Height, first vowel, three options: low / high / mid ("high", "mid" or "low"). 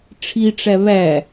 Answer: high